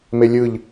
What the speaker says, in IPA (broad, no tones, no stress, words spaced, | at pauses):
melʲɯʎ